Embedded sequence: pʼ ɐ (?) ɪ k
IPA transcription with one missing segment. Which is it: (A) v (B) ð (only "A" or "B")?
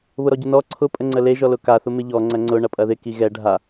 B